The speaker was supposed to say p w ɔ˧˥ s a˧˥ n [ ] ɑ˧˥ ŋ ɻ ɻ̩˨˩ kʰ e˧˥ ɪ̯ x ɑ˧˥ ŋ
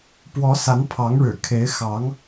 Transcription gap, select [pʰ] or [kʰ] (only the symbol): pʰ